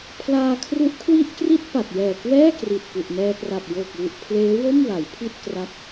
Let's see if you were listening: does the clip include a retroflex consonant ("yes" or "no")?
no